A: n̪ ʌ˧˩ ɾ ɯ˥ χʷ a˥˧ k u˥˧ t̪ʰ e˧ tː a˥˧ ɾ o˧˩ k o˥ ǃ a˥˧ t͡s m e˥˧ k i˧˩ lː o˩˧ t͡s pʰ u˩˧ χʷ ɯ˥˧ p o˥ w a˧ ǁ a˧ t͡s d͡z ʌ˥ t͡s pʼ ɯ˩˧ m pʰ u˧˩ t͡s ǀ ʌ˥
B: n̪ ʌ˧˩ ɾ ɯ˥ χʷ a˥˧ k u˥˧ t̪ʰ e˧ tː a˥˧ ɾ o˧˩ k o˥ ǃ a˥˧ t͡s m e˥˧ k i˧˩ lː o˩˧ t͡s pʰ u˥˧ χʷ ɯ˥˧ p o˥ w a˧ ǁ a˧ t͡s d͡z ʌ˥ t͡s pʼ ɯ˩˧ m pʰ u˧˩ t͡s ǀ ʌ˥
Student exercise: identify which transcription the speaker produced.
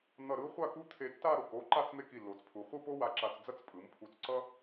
A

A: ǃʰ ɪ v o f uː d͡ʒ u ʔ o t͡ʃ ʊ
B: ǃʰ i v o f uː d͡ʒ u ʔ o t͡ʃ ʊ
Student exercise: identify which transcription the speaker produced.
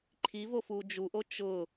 B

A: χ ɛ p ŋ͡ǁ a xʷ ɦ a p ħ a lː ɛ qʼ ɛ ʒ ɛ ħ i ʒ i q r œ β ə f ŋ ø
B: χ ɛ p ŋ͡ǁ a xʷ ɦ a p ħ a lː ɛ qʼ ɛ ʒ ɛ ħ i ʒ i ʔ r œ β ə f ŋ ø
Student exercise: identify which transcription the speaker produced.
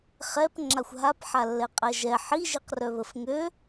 A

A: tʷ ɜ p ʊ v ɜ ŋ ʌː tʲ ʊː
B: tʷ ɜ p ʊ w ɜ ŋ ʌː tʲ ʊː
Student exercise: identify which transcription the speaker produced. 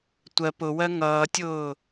B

